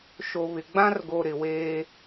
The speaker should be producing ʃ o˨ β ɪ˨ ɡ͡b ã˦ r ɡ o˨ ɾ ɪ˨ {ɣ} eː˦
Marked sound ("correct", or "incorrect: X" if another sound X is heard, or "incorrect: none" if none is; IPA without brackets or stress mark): incorrect: w